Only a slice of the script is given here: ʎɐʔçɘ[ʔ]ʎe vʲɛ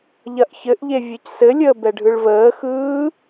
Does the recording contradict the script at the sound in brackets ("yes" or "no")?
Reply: no